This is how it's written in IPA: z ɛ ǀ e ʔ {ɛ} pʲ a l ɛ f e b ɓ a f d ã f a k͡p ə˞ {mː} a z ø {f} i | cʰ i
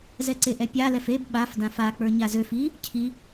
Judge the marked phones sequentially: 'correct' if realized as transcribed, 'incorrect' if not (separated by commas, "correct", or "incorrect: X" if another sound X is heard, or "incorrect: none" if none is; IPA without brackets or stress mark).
correct, incorrect: ɲ, correct